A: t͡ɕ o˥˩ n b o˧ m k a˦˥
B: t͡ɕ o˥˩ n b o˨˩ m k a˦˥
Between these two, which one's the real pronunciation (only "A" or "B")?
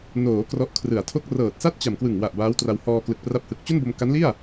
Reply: A